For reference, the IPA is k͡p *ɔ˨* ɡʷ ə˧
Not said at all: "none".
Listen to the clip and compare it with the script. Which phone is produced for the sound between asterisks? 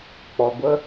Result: ɔ˨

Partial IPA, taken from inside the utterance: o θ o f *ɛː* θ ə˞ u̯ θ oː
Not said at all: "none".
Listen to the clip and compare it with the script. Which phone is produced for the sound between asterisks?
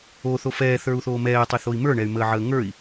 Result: ɛː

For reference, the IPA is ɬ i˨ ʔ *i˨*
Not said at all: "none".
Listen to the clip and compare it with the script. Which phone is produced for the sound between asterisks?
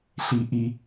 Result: i˨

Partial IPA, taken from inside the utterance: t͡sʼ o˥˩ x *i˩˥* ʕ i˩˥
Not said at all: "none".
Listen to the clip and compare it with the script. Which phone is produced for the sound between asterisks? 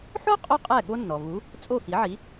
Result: i˩˥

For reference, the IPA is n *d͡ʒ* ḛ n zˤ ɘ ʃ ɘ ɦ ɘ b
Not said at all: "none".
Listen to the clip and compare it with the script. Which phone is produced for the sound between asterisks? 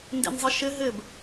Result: d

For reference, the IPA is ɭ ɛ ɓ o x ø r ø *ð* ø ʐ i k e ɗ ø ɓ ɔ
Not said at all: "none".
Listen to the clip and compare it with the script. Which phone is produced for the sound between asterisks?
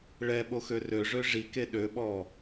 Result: ʐ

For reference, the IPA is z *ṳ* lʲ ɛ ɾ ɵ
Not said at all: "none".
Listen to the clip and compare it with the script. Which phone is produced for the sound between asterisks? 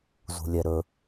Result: ṳ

